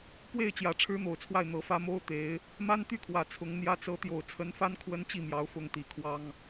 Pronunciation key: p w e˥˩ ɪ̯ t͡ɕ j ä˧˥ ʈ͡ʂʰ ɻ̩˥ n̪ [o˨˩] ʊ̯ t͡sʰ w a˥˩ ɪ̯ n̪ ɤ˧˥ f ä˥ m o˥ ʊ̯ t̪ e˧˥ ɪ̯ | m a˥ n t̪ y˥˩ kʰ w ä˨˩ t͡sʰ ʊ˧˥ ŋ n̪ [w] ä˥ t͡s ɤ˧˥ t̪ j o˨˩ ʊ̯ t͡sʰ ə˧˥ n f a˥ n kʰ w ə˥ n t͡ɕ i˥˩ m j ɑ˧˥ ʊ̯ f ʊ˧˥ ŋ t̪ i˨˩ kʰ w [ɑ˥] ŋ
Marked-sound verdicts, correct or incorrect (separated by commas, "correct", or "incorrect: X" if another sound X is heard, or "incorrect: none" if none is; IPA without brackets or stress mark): correct, incorrect: j, correct